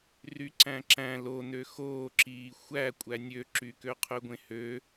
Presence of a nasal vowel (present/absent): present